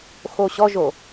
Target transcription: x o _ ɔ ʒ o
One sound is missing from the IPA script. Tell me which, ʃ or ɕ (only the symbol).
ɕ